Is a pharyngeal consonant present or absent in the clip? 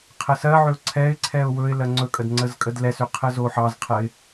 present